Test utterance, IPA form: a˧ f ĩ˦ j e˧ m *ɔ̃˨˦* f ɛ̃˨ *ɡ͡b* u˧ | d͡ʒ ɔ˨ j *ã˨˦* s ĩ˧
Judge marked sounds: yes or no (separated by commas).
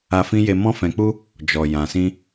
no, no, no